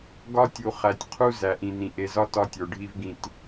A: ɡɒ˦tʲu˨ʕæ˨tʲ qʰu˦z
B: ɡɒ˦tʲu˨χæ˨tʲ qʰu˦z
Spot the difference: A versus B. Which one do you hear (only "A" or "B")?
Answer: B